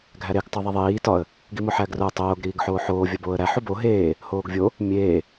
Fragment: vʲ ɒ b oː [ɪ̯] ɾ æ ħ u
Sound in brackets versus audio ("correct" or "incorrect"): incorrect